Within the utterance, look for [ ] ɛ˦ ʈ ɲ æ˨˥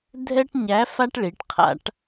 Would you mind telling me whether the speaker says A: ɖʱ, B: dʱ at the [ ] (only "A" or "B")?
B